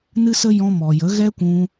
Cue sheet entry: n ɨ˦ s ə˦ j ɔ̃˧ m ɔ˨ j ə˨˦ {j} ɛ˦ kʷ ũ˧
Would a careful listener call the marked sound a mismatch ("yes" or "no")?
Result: yes